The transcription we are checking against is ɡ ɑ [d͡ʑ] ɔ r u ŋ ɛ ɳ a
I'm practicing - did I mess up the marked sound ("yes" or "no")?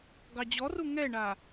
no